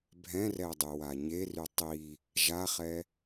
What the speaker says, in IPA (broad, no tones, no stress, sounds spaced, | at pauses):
bʱ ɛ̃ r ɛ dˤ y w a ɲ e r y tˤ i | ʒ a χ ɛ